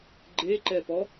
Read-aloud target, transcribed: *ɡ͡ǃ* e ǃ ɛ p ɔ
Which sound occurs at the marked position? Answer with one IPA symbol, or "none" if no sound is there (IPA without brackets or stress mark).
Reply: ɡ͡ǃ